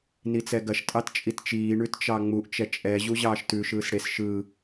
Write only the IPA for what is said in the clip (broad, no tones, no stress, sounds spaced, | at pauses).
n i t͡s ɛ ɡ ɐ ʃ tʼ ɑ t t͡ʃʼ i t t͡ʃ iː ɳ ʉ t t͡ʃ ɑ ŋ͡m u ʔ t͡ʃ ɛ t͡ʃʼ ɛ ʑ u ʑ ɑː ʃ t ʉ ʃ ɯː s ɽ e s ʃ ɯ